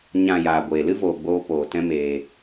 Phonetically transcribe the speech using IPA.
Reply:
ɲ ã˨ j aː˨ ɡʷ eː˨ l ɨ˦ v oː˨ ɡ͡b oː˧ p oː˨ t ɛ̃˦ m eː˧

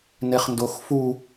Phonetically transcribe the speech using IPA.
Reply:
n e χ n d o x f u

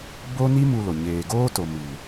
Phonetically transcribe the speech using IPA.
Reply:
b o˦ n i˦ m u˧ l o˨ ɲ eː˨ ɡ oː˦ t o˨ m i˨

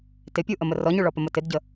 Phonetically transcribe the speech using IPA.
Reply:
t ɪ pʲ u ʔ ə m ə r ɔ ɲ u ɭ ɔ p ə m ə t ɪ d ɟ ə

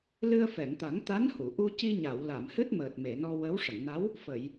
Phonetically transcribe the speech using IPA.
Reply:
l ɨ˧ ə̯ f ɛ˨˩˨ ŋ t̪ a˨˩˦ ŋ t̪ a˧˥ n h u˨˩˨ ʔ u˧ c i˧ ɲ a˨˩˨ w l a˨˩˨ m h ɨ˦˥ t̚ m əː˨˩ t̚ m e˨˩˨ n ɔ˧ w ə˧˥ w ʂ ə˨˩˨ ŋ n a˧˥ w | f ə˨˩˨ j

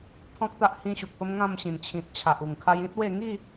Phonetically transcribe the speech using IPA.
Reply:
pʰ ɔ̃˦ k̚ t̪ a˦ ʔ h ĩ˦ ɕ u˨ k̚ p ə˦ m ŋ ã˥˧ m ɕ ĩ˨˩ n t͡ɕʰ ĩ˨ t̚ t͡ɕʰ a˨ ʔ u˨˩ ŋ kʰ a˧ j ĩ˦ t̚ w e˥˧ ŋ i˥˧

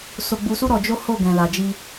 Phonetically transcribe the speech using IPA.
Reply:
s o˧ ɡ͡b u˧ s u˦ ɾ ɔ˧ d͡ʒ o˦ h o˦˨ ɡ ɛ̃˨ l a˨ d͡ʒ i˧

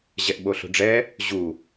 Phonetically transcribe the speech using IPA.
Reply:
ʑ ɛ ʔ ɓ o ɬ o̤ ɖ͡ʐ ɛ | ʑ u

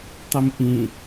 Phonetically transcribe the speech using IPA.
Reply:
tˤ i m ʔ ĩ

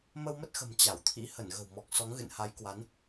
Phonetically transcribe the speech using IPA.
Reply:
m ə˧ w m ə˦˥ t̚ x ə̤˨˩ m t͡ɕ a˧˩ w t̪ʰ ḭ˧˥ h ə˧˩ n ɣ ə̤˨˩ w m ɔ˨˩ k̚ s ɔ˨˦ ŋ ɣ ɨ̰˧˨ n h a˨˦ j k w a˨˦ n

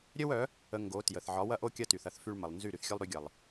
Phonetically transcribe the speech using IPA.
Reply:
ɾʲ œ˦ w œ˨˦ | ə˨ ŋ ɡ o˨˦ t j ə˨ θ ʕ ɒ˨˦ w ɐ˦ ʔ o˦ kʲ ɐ˦ t y˨ θ ɐ˦ θ f y˦ ɭ m ə˨ lˠ n z y˦˨ ɾ y˨ θ xʲ œ˦ lˠ ɾ y˨˦ ɡʲ ɐ˨ lˠ

